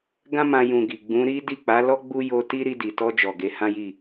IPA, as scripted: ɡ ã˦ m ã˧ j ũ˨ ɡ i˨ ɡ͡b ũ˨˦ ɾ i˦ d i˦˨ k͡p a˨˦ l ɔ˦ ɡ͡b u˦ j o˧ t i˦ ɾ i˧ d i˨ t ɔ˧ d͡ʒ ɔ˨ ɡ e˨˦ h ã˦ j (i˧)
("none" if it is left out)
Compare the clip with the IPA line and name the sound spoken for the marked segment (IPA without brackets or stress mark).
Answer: i˦˨